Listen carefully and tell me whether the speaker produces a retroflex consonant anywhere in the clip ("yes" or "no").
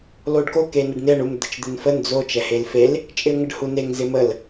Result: yes